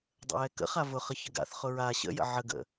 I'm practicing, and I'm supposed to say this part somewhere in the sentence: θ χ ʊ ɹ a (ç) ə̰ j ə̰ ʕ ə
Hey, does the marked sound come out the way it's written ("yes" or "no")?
no